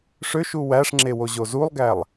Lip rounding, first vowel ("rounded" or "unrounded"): rounded